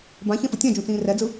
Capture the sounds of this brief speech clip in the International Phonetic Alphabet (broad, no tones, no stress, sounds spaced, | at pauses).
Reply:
b ã ç ɛ̃ f ɯ tʲ ã d͡ʒ ũ t͡s ĩː r ɛ d͡z ɯ